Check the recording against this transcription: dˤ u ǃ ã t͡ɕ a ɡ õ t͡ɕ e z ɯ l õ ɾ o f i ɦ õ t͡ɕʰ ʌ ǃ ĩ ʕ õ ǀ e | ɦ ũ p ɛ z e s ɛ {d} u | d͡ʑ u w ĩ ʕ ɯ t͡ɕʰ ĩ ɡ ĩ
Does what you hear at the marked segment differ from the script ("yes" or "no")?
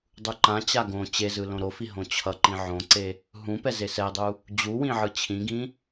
yes